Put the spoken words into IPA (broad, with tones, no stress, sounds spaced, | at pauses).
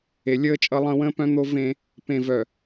e˨ lʲ əː˦ t͡ʃʼ ʌ˦ lˠ ə̃ː˦ w ə̃ː˦ p œ̃˦ n̪ o˦ v ẽ˦ | p ẽ˨ v œ˨